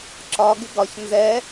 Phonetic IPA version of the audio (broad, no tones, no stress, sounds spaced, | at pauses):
ǁ ɒ ɡ ɪ ɡ ɒ ç n z ɛ